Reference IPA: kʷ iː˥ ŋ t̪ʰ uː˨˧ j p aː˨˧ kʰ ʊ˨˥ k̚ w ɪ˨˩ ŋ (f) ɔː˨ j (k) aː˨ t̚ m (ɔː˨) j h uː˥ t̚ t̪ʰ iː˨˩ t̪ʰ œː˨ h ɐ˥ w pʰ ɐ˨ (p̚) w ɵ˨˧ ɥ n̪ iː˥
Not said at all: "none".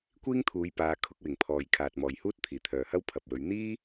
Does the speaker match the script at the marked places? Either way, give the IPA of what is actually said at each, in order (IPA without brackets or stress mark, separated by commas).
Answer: pʰ, kʰ, ɔː˨, p̚